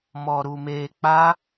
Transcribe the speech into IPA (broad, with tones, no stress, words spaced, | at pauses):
mɔ˧ɾu˧ me˧k͡pa˦